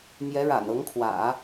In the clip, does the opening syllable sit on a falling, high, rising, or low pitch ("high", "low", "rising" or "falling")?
rising